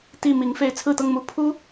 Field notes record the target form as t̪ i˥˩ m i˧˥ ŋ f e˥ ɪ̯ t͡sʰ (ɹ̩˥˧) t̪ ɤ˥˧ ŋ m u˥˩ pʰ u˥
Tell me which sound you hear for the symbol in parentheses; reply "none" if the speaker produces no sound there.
ɹ̩˥˧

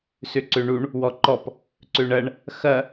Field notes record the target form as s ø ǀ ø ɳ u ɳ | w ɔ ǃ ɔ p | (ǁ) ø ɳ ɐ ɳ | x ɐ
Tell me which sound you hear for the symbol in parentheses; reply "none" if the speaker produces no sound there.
ǀ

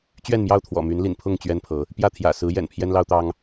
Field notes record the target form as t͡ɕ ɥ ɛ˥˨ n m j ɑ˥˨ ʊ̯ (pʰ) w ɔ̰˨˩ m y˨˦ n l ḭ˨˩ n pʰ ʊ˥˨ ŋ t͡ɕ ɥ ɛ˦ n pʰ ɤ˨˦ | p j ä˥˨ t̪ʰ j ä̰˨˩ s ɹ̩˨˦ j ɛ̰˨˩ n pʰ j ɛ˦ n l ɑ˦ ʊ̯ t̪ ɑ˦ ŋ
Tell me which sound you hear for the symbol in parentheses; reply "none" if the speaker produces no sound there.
t̪ʰ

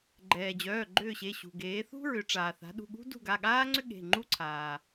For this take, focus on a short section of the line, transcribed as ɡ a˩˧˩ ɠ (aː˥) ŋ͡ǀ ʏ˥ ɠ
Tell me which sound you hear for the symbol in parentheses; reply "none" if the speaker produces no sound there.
aː˥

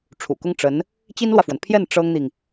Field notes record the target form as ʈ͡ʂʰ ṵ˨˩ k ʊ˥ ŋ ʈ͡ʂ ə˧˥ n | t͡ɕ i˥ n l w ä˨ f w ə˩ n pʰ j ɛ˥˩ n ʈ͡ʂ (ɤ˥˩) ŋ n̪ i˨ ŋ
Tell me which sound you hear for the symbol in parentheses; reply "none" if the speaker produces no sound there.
ɤ˥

